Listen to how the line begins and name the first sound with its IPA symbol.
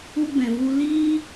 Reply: u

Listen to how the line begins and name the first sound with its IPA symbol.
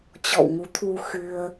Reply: t͡ɕ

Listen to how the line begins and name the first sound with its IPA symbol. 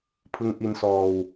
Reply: pʰ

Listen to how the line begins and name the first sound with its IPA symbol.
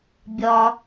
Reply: bʲ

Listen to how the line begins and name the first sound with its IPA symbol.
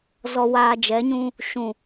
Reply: z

